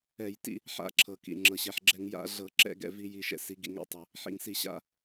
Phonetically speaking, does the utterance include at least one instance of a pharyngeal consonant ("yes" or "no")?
yes